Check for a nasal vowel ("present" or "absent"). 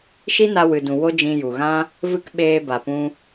present